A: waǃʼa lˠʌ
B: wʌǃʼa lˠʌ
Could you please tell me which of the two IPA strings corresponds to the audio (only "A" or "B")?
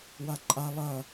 A